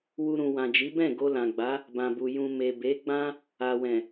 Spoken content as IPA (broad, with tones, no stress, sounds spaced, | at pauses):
w u˨ ɾ ũ˨ w ã˨ d͡ʒ i˨˦ b ɛ̃˦˨ ɡ o˧ l ã˨ ɡ͡b a˨˦ | b ã˨ b u˨ j ũ˨ m e˨ b e˨˦ ɡ͡b ã˦ | a˨ w ɛ̃˨